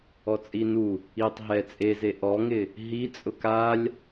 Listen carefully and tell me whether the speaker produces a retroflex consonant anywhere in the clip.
no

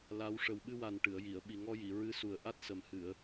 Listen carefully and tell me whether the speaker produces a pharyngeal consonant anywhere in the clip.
no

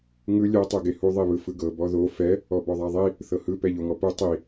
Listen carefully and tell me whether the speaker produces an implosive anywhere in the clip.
no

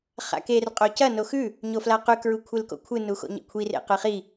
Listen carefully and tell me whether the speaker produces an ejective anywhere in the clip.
yes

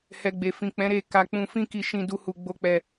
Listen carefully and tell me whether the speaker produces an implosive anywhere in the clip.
no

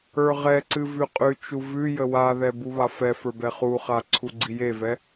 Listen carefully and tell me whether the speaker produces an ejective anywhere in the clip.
yes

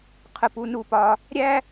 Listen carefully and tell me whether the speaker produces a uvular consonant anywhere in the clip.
yes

